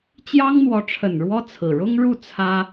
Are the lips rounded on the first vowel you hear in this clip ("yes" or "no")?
no